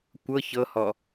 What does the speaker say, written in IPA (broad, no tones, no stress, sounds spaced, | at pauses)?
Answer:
kʷ ɤ ç ɤ h ɔ